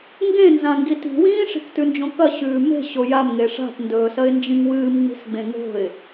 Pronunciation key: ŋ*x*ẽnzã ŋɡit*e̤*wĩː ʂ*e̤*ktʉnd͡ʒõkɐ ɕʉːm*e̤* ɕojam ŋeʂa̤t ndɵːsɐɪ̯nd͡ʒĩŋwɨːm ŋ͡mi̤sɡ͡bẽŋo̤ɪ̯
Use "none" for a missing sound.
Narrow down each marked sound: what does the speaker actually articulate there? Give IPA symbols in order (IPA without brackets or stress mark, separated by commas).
ɡ, i̤, i̤, e̤